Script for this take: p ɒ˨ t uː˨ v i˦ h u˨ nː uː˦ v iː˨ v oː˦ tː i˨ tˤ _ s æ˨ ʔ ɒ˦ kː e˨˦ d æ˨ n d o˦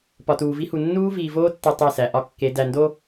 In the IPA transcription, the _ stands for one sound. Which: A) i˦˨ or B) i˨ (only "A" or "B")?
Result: A